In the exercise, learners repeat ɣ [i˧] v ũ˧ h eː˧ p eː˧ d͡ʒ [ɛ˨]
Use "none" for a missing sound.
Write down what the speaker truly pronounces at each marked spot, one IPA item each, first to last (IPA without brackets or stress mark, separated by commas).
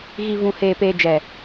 i˧, ɛ˨